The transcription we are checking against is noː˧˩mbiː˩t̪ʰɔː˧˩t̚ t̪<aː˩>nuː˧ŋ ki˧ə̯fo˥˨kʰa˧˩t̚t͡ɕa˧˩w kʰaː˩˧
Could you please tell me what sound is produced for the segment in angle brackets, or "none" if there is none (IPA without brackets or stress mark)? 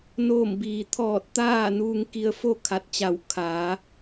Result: aː˥˨